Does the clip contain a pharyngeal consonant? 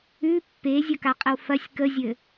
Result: no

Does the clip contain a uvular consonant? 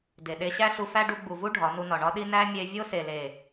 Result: no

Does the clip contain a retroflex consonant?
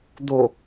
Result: no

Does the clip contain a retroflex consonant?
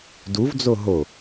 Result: no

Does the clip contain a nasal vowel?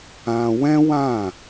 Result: yes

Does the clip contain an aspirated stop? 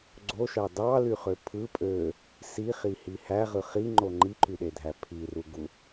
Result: yes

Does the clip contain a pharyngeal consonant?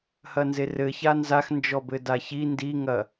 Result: no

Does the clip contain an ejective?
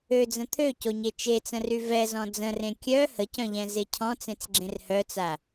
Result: no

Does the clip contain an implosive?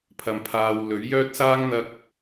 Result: no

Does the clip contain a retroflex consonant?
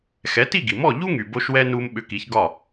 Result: no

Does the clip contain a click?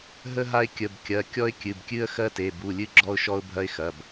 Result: yes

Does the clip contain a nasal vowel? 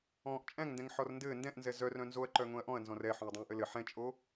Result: yes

